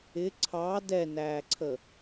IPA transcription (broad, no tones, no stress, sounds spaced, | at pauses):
ɪ ǀʰ ɑ d ɛ n æː ǀʰ ə